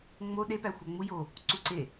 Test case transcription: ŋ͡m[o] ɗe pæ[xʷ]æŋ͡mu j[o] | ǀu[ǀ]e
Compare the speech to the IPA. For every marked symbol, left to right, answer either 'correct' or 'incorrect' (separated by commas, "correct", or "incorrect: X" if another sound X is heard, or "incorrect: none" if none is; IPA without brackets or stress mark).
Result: correct, correct, correct, correct